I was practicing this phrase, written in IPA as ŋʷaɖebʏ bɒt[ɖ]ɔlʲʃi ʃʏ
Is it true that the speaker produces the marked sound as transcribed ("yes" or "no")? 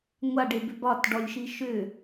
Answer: yes